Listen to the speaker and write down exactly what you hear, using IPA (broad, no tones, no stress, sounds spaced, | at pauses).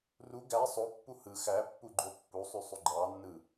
r u ɡ æ sˤ o pː u h ɯ x æ pː u ɡ͡ǃ o pː u sˤ y sˤ y ɡ͡ǃ ɑ nː ɯ